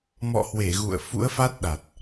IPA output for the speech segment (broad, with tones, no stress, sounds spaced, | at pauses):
m ɔ̰˧˨ h w e˧˩ ɣ ṵ˧˨ ə̯ f ṵ˧˥ ə̯ f a˦˥ t̚ ɗ a˨˩ t̚